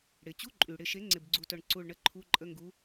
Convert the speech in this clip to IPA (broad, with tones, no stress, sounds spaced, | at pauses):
ɽ ɪ˩ t͡ɕ u˧˥˧ ǃʼ y˩ ɽ ɪ˧˩ ʃ e˨˥ ŋ͡ǀ ɪ˧˩ b ɡ͡ǀ u˧˩ t œ˧˩ ɳ ǀ u˧˩ ɭ ɳ ə˧˥˧ ǃʰ u˧˥˧ ǃʼ ə˧˥˧ ŋ ɡ u˨˥